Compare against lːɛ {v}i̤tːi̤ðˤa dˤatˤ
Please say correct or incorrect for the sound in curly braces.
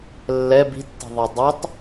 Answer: incorrect